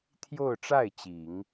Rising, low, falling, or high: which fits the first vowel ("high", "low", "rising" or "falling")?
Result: falling